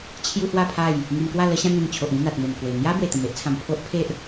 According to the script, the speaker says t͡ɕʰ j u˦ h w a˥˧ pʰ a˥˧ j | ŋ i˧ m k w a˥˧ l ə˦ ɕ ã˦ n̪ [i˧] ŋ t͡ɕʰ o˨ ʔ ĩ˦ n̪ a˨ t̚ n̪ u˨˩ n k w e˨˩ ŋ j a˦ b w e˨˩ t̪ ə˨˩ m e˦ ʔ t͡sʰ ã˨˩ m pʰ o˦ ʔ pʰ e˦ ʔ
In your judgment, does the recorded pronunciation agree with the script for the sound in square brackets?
no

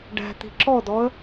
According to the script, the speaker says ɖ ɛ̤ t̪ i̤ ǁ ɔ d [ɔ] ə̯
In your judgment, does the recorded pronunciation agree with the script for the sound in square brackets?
yes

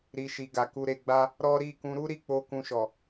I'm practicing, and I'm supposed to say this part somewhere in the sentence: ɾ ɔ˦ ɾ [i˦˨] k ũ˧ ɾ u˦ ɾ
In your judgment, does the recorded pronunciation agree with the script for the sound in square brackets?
yes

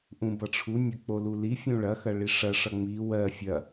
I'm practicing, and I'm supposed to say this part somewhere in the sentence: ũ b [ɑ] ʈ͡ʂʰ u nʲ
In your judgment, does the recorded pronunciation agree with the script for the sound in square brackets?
no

